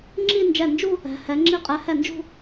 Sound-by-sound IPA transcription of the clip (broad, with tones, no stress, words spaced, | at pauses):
ŋ͡ǁi˥˧ nd͡ʒɛ˧˩nd͡ʒu˥˧ | ɛ̤˩˧hɛ˩˧ ŋ͡ǁi˧qʼɛ˩˧hɛ˧˩nd͡ʒṳ˥˧